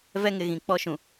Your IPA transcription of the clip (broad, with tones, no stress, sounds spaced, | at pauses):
v ɛ˦ ŋ ɪ˨ ɣ ĩ˨ k͡p ɔ˦ ʃ ũ˨